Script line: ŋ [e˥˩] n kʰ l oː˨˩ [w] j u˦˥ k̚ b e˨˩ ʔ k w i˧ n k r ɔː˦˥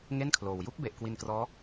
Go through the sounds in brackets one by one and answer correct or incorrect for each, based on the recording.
correct, correct

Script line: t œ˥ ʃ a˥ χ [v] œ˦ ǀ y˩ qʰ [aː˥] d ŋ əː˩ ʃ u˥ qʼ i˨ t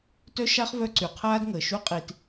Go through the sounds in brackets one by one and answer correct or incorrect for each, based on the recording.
correct, correct

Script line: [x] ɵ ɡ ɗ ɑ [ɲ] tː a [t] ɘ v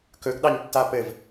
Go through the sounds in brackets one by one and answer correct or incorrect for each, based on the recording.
incorrect: k, correct, incorrect: p

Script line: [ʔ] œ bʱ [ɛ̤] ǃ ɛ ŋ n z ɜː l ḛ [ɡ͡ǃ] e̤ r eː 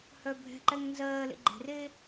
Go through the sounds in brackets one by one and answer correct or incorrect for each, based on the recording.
incorrect: h, correct, correct

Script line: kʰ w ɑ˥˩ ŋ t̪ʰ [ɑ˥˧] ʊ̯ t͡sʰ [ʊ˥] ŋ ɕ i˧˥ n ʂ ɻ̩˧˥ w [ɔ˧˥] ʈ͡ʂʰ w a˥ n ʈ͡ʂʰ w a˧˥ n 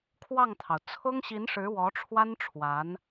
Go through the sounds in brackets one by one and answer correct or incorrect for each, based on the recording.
incorrect: ɑ˩, correct, correct

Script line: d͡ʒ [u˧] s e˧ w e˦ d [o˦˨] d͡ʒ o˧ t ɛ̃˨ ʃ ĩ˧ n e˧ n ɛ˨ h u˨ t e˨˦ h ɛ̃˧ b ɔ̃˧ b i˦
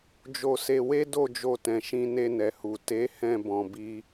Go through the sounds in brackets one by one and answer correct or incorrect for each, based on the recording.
incorrect: o˧, correct

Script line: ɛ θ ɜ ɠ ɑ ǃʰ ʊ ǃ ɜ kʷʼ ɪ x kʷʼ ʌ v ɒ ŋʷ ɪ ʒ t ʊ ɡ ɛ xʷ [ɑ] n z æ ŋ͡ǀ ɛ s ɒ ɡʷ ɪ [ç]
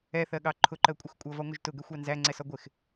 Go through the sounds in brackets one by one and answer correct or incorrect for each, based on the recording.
correct, incorrect: x

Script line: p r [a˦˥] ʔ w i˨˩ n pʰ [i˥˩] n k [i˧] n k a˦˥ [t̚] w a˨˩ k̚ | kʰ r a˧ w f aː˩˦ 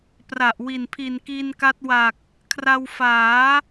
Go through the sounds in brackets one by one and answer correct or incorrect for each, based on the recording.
incorrect: a˨˩, incorrect: i˨˩, correct, correct

